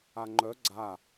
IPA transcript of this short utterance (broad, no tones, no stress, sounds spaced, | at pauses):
a ŋ͡ǃ œ ɡ͡ǀ a